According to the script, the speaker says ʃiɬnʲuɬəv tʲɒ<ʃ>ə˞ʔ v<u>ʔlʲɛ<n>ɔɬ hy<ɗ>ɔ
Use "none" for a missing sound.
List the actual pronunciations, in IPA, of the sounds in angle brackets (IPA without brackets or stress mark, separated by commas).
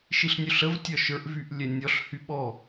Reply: ʃ, y, nʲ, ɓ